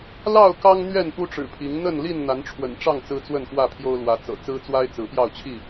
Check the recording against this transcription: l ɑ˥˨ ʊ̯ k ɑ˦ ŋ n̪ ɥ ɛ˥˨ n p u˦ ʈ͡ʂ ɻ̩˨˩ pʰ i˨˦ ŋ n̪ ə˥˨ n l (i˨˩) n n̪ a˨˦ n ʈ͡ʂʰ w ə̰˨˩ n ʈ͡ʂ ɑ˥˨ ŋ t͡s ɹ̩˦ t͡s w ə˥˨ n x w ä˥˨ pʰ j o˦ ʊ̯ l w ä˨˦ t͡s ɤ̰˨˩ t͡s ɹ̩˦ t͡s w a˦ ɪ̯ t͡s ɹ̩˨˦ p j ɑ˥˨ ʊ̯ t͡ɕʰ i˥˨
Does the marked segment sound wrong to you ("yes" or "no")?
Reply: yes